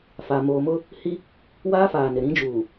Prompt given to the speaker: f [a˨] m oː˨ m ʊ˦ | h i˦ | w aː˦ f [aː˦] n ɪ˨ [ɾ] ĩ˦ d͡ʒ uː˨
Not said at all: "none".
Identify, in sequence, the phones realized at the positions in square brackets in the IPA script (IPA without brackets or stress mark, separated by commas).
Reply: a˨, aː˨, ɾ